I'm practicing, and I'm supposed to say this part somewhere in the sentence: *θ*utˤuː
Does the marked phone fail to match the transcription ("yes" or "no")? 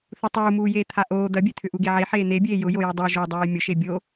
no